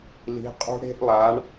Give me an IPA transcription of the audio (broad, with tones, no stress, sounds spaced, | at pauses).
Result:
l i̤˩˧ qʼ ṳ˧ ɽ e̤˧ ʔ lˠ a˩˧ ɳ